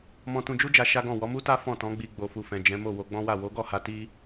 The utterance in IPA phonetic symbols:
m ɔ̃˧ t ũ˧ d͡ʒ u˦ d͡ʒ a˧ ʃ a˦ ɡ ɔ̃˦˨ w ɔ˨˦ m u˦ t a˦ f ɔ̃˦˨ t ɔ̃˨˦ ɡ͡b i˧ ɡ͡b o˨ f u˨ f ɛ̃˨ d͡ʒ ɛ̃˨˦ m o˦˨ w o˧ ɡ͡b ɔ̃˦ w a˦˨ w o˨˦ ɡ ɔ˦˨ h a˧ t i˦

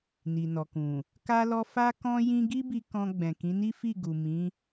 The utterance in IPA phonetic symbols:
n i˨ n ɔ˨ k ũ˨ | k a˦ l ɔ˦ f a˦ k ɔ̃˦ j ĩ˦ ɡ i˦ b i˧ k ɔ̃˧ ɡ͡b ɛ̃˨ k ĩ˨˦ n i˦ f i˦˨ ɡ u˨ m ĩ˨˦

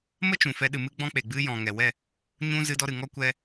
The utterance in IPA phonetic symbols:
m ə˦ t͡ʃ ũ˨ f ɛ˧ ɗ ɨ˨ m ɨ˦ ɡ͡b ɔ̃˦ k͡p e˨ ɡ͡b ɨ˧ j ɔ̃˨ ŋ ɛ˨ w ɛ˦˨ | ɲ ũ˦ z ɨ˧ d ɔ˧ ɾ ɨ˨ ŋ ɔ˦ kʷ ɛ˧

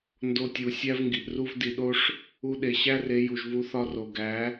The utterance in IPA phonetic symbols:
n d o˧ tʲ u˨ sʲ æ˦ v ŋ ɡ i˨ ʔ r u˦ v d i˨ ɗ o˦ ʂ | u˧ ɗ e˨ ɕ æ˦ r e˨˦ j u˨ ʒ v u˧ θ ɒ˦ r o˨ ɡ æ˨˦

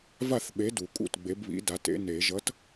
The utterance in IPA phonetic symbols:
v a˥˩ θ ɓ e˨˥ d u˨˩˦ kʼ ṵ˥˩ t ɡ͡b e˨˥ b β ḭ˨˥ d a˨˥ t ḛ˨˥ n e˨˩˦ ʒ ʌ˨˥ t

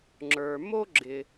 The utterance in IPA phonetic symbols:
ŋ͡ǁ ə˞˩ m o˦ ɡ͡ǁ ɪ˩

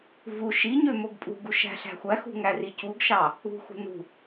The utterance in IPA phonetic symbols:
v u ʃ i ɲ ø m o ɡ pʼ ṳ ɡ u ʃ æ̤ ɬ æ̤ xʷ æ x ṳ ŋ æ r i c u ɡ ʃ ɑ | ṳ x ṳ n ṳ

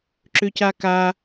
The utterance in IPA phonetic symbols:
ǁ ʏ c a k a

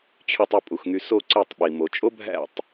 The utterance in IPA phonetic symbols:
t͡ɕʰ y˧ tˤ u˧ pʼ u˨ x ŋ y˧ s o˦˨ ǀ e˦˨ tˤ ɓ i˨ m o˨ t͡ʃʼ o˦ bʱ æ̰˦˨ tˤ

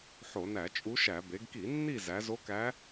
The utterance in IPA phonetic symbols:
ħ o˧˩˧ n æ˧˩˧ t͡ʃʼ u˧˥ ʃ æ˧˩˧ b e˩˧ ɡ k i˧˩˧ nː i˦˨ z æ˩˧ z o˧˥ k æ˧˥

